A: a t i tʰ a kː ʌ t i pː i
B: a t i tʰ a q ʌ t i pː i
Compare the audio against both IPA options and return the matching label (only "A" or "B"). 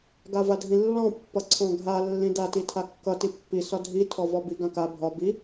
A